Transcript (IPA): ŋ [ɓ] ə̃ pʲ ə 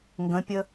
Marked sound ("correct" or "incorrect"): incorrect